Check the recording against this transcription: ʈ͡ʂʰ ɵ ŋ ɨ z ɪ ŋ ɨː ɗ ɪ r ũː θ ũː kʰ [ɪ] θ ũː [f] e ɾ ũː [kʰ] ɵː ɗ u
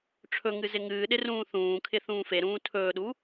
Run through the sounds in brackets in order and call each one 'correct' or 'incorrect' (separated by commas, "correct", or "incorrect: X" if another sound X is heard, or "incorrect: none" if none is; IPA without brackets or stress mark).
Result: correct, correct, incorrect: tʰ